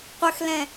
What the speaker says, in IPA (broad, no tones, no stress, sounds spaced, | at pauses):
qʷ ə x l ɛ̃